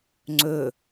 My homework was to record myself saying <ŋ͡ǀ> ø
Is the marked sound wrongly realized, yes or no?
no